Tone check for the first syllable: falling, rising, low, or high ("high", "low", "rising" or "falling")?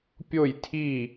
falling